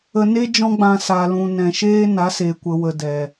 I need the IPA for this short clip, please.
ə˧ n e˦ d͡ʒ ɔ̃˦ ɡ͡b ã˧ s a˨ l ũ˨ n ɛ̃˨ ʃ eː˦ n a˨˦ s e˨ kʷ ə˨ w ə˨ d ɛ˨

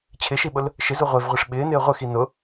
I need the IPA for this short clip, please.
t͡ɕʰ ɪ ʃ i ɓ ʊ l | ʃ ɪ z u ʁʷ e v ʁʷ i ʂ ɓ ɪː n ɪː ʁʷ ɪ x i n ʊ

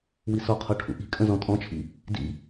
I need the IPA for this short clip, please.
w i s ɔ qʰ ɔ ʈʰ ṵ ʔ i̤ kʼ ə̃ z ɔ̃ tʼ ɔ̃ t͡ʃʰ ḭ | d ḭ

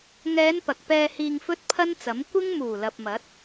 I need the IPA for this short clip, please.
ŋ ɛː˨˧ n p ɐ˨ k̚ p ɛː˧ h iː˧ ŋ f ɵ˥ t̚ pʰ ɐ˥ n t͡s ɐ˨˥ m kʷ ɪ˥ ŋ m uː˨˩ l ɐ˨ p̚ m ɐ˨˥ t̚

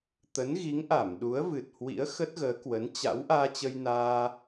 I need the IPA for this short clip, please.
t̪ ə˨˦ n ɣ i˨˦ ŋ ʔ a˧˩ m ɗ u˨˦ ə̯ v ɨ˨˩ t̚ h w ḭ˧˥ ə̯ x ə˦˥ t̚ ɣ əː˨˦ k w ə˨˦ n t͡ɕ a̰˧˥ w ʔ aː˧ t͡ɕ ə˧ j n aː˧

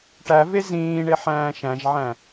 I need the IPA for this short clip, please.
ʈ æ v e z ĩː ɳ e ħ æ̃ː ʃ æ̃ ʒ ʕ æ̃

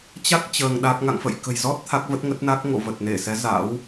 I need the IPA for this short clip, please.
t͡ɕ a˦˥ k̚ t͡ɕ əː˧ ŋ ɗ a˦˥ k̚ ŋ a̰˧˨ ŋ f ə̰˧˨ j k ə̤˨˩ j z ɔ˦˥ t̚ t̪ʰ a˦˥ k̚ v ə˦˥ t̚ ŋ ə˦˥ t̚ n a˦˥ k̚ ŋ o̰˧˨ v ə˨˩ t̚ n e˧˩ s ɛ˨˦ z a̰˧˥ w

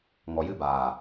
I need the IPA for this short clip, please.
ŋ ɔ˨ j ɨ˧ b aː˨

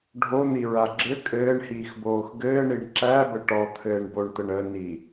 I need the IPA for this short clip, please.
ɖʱ o n̪ i ɹ a ɡ͡ǁ ɘ kʼ ɘː ɳ h iː x b oː x ɡ ɘː ɳ i ɳ ǁ æ b ə ʈ ɔ t̪ʰ ɘː ɳ b o ɳ t̪ ə ɳ ə n i

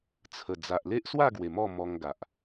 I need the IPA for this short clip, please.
t͡sʰ ə˨˩ d͡z a˨ ʔ l e˦ ʔ s w a˥˧ ɡ w e˨˩ m ɔ˥˧ m ɔ˧ ŋ ɡ a˨ ʔ

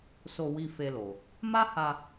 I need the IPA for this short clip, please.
s o˧ w i˧ f e˧ l o˨ | m a˦ h a˧

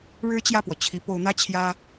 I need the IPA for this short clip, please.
ɻ ɻ̩˥ t͡ɕ j ä˥˩ p w ɔ˩ t͡ɕʰ i˧˥ p o˧˥ ʊ̯ n̪ ä˥ t͡ɕʰ j ä˥

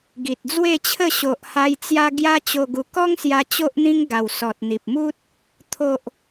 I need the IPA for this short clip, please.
ɡ i˨ t̚ d͡z w e˥˧ t͡ɕʰ ə˥˧ ɕ o˨ ʔ h a˧ j t͡s j a˧ ɡ j a˦ t͡ɕ o˧ ɡ u˧ k ɔ˦ ŋ s j a˧ t͡ɕ o˦ ʔ n̪ ĩ˦ ŋ ɡ a˨˩ w s ɔ˨ t̚ n̪ i˨ p̚ m u˦ t̚ | t̪ʰ o˨ ʔ

